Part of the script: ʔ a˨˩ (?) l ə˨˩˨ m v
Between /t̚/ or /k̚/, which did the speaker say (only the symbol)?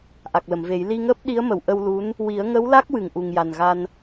k̚